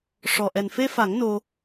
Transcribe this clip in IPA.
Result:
ʂ ɔ˨˩ ʔ ɛ˨˩ n f e˧ f a˨˩˦ ŋ n o˧

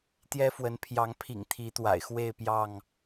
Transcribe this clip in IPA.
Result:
t̪ j ɛ˦ f w ə˨˦ n pʰ j ɑ˨˦ ŋ pʰ ḭ˨˩ ŋ t̪ʰ i˨˦ t̪ w a̰˨˩ ɪ̯ x w e˥˨ ɪ̯ p j ɑ˥˨ ŋ

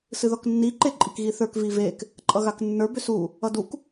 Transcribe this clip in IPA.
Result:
s ɨ ð ɔ k nː i ǃ e ǃʼ i k ɣ i θ ə˞ k v i v e k | ǃʼ ʌ ɣ a k nː ə˞ b ʏ s u | ʌ d u k

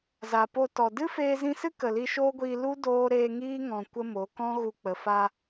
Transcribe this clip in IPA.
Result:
z a˨ p o˧ t ɔ˨ d ɨ˦ f eː˧ z ĩ˧ s ɨ˦ k ə˨ l i˧ ʃ oː˦ ɡʷ iː˧ l u˦ d oː˦ ɾ eː˧ ŋ iː˦ ŋ ɔ̃˨ kʷ ə˦ m o˨˦ k ɔ̃˦ ɣ u˧ k͡p ə˨˦ f a˦

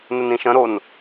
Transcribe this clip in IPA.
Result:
n ə n ĩ ʃ ə̃ ɾ o n

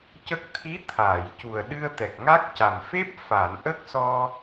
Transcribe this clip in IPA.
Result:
c ə˦˥ k̚ t̪ʰ i˧˥ t̪ʰ aː˨˩˨ j c u˨˩ ə̯ ɗ ɨ˧ ə̯ t̪ ɛ˨˩ k̚ ŋ a˦˥ k̚ c a˨˩ m f e˦˥ p̚ f a˨˩˨ n ʔ ə˦˥ k̚ s ɔ˧

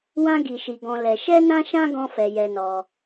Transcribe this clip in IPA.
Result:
w ã˦ ɡ i˧ ʃ i˧ ɡ ɔ̃˧ l ɛ˧ ʃ ɛ˦ n ã˦ ʃ ã˦ ɡ ɔ̃˦ f ɛ˧ j ɛ˧ n ɔ˧

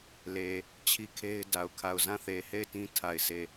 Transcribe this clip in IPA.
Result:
l e˨ | t͡ɕʰ i˦ kʰ e˦ ɪ̯ d a˨ ʊ̯ kʰ a˦˨ ʊ̯ z ã˦˨ θ e˨ h e˦˨ ɪ̯ t ĩ˦ tʰ a˦˨ ɪ̯ s e˦˨

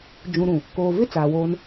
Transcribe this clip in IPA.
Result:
d͡ʒ ũ˨ ɾ ũ˨ | k oː˨ v ɪ˦ t͡s aː˨ w oː˦ n

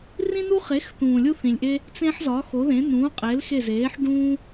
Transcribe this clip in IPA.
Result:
r ĩ˥ n u˥ χ e˨˥ x t̪ ũː˨ lʲ u˥ θ ĩ˨ lʲ ʔ e˥ | t͡s ẽ˥ ħ z ɒ˨˥ x o˨˥ ð ẽ˨˥ n ũː˨˥ qʼ e˨˥ l x e˦˨ z eː˨˥ ħ ɖ ũː˥

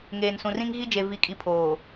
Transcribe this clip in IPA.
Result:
ŋ eː˨ n s ũ˨ r ĩ˦ ŋ ɣ i˦ d͡ʒ e˨ v i˨ kʼ i˨ pʰ oː˨

